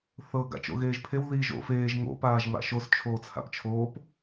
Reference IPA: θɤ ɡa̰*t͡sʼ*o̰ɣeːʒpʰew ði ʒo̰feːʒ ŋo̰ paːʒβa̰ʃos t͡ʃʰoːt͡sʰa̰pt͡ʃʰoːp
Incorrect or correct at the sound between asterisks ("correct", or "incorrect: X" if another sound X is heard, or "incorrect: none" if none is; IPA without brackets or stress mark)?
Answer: incorrect: t͡ʃ